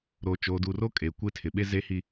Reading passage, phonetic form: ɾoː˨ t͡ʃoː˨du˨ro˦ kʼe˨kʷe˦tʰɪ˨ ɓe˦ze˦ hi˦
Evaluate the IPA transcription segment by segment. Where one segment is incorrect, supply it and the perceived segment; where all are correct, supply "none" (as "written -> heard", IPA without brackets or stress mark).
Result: none